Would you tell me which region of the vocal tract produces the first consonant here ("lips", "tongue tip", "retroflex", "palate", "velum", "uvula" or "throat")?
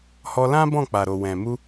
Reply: throat